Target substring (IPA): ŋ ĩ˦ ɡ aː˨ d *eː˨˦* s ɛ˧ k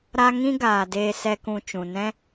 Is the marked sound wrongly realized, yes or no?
yes